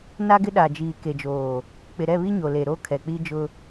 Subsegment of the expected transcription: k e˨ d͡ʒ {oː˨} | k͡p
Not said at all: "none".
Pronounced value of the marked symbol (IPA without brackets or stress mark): oː˨